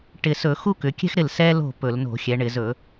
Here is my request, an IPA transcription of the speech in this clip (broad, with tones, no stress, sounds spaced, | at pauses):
ʈ ɪ˨˩ s ɵ˧˩˧ x u˥ k ʏ˩˧ kʲ ɛ̤˥ x ɾ ɪ˥˩ l s ɛ˥ l o̤˥˩ p ɵ˧˩˧ l n o̤˧˩˧ xʲ ɛ˩˧ ɳ ɪ˧˩˧ z ɵ˧˩˧